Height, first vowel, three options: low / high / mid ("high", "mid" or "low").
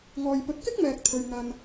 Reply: mid